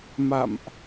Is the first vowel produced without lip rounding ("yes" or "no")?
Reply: yes